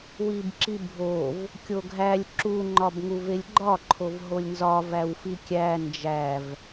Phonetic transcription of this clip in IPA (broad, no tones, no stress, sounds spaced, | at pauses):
w i b ǁ i bʱ o v | kʲ o ɡʱ æ lʲ ǁ u ŋ͡ǃ ɒ b ŋ u v e lʲ ɡ͡ǃ ɒ ǃʰ o v ɦ o lʲ n z ɒ v æ w f i kʲ æ n d͡ʒ æ v